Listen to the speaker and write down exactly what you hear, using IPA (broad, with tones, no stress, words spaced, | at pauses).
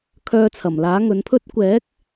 kʰœː˧t͡sʰɐ˨˩mlaː˨˥ ŋɵ˨˥npʰɵ˥t̚ kʷɛː˨˥k̚